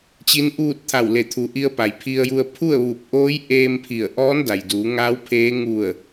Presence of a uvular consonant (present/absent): absent